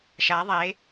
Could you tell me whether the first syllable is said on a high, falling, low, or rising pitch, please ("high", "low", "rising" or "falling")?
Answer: rising